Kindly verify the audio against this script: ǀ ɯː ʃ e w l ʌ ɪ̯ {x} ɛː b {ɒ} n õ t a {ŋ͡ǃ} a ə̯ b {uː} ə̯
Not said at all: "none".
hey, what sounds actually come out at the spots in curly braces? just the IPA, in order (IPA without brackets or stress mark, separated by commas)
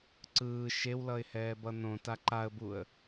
h, ʌ, ǃ, u